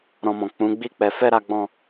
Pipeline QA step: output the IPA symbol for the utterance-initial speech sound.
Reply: ɾ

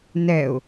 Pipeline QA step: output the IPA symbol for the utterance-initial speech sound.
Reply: n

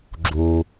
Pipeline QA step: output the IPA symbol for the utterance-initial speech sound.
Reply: ɡ͡ǁ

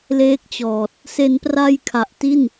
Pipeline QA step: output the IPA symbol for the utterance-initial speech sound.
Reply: l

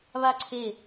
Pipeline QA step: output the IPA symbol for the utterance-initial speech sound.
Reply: β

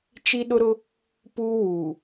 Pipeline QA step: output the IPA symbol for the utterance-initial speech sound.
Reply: t͡ʃ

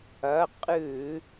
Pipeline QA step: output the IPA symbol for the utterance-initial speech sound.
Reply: ɐ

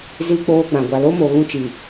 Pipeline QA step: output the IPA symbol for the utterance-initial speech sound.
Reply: z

